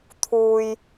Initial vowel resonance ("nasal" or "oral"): oral